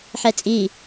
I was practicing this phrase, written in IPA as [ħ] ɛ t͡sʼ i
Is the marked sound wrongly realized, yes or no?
no